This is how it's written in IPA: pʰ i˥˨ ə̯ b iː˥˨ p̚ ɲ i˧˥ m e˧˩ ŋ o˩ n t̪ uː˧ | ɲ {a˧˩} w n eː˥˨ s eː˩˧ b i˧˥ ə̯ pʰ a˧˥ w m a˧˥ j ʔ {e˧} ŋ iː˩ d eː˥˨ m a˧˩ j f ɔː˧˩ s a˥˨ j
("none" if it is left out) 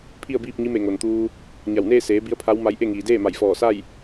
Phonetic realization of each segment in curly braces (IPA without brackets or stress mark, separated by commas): a˧˩, e˥˨